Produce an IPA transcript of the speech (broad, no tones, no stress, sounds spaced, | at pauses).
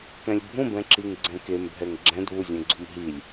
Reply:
k ɛ̃ lʲ bʱ ũ b ɛ̃ ǁ i ŋ ɡ͡ǀ ɛ̃ k e m bʱ ɛ ŋ ɡ͡ǁ ɛ̃ d β u zʲ ɛ̃ ɡ͡ǀ u m ɦ i lʲ